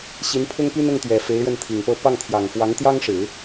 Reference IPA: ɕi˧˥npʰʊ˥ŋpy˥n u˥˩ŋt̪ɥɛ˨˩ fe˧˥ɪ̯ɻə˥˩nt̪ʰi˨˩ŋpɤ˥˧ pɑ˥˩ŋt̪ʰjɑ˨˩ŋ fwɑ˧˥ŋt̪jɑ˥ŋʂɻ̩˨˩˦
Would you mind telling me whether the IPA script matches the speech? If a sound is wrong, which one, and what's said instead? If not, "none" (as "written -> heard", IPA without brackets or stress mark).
u˥˩ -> ʊ˥˩